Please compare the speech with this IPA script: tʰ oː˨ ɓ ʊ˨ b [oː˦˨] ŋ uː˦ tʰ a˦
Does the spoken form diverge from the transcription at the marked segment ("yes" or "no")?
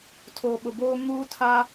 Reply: yes